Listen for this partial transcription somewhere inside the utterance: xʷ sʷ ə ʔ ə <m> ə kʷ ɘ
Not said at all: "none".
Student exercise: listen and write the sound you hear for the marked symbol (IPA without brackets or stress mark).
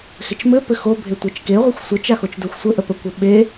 p